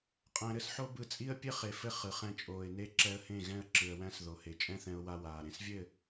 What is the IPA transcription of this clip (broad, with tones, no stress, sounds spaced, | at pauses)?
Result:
qʼ æ̃˧ ɾ ɘ˦ s ħ o˦ b ɯ˧ t͡sʼ i˦ ə̯ pʲ ɘ˦ χ e˨ f ɘ˧ χ ɯ˨ χ ɛ̃˧ t͡ʃʼ oː˨ ɪ̯ n e˧ ǁ ɛ˧ ə̯ h ẽ˦˨ ɣ ɛ̃˦˨ ə̯ ǁ ɯ˨ ə̯ w æ̃˦ s ð o˨ h e˨ t͡ʃʼ ɛ̃˦ θ ɛ̃˧ ʊ̯ w a˧ w aː˨ ɾ ẽ˨ s vʲ ɘː˦˨